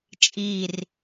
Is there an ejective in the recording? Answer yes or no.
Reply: yes